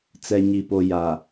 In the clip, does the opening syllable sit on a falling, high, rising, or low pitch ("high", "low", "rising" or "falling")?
low